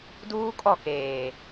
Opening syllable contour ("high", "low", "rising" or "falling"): high